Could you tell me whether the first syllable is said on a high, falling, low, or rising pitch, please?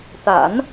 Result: low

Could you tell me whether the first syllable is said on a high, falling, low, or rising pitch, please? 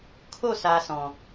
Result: falling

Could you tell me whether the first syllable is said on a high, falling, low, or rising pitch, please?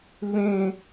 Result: high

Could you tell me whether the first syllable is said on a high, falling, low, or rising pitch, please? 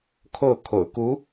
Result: falling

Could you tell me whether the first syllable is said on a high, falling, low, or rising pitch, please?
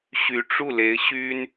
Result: rising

